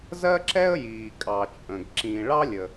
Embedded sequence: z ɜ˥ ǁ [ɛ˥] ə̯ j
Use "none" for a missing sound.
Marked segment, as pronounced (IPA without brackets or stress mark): ɛ˥